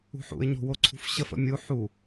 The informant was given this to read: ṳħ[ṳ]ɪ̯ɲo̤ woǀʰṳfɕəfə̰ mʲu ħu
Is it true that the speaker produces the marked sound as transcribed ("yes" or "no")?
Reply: no